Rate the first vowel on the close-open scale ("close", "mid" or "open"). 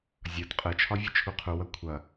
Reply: open